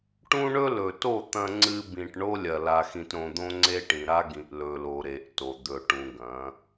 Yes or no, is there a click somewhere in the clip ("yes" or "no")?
yes